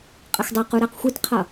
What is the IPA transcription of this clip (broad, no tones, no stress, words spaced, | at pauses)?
qʼəxdˤæqu ɾæqxʷitqʰʌ